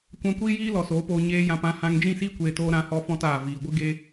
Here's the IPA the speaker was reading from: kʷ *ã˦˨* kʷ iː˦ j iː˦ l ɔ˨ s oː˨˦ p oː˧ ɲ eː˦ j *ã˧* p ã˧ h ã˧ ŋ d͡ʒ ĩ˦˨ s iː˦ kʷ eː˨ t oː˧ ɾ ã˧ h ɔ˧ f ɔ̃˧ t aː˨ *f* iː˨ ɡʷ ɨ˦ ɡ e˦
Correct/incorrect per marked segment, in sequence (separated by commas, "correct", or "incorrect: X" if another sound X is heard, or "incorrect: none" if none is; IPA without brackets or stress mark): incorrect: ã˧, correct, incorrect: v